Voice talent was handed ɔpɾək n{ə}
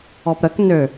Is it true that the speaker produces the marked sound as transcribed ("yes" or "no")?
no